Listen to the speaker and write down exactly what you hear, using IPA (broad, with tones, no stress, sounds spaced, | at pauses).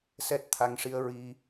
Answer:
s ɛ˦˥ t̚ t̪ʰ a˧ ŋ ʂ i˧ ə̯ ɹ i˧